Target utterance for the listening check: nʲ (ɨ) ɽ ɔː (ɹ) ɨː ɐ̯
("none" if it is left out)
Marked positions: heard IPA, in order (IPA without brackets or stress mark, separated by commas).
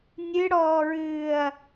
ɨ, ɹ